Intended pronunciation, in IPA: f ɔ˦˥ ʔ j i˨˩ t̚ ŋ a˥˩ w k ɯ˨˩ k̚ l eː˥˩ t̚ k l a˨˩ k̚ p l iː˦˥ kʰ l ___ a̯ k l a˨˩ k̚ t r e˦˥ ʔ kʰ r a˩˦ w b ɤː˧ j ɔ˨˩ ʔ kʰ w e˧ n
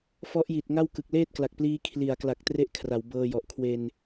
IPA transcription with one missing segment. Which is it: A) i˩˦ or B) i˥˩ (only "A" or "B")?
A